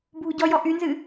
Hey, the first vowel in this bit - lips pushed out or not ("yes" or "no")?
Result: yes